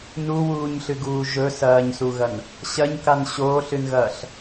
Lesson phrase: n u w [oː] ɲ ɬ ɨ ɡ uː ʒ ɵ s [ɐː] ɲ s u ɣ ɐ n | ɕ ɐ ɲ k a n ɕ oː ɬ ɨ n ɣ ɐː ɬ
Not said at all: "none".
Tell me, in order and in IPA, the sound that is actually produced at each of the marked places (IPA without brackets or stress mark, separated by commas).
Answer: uː, ɐː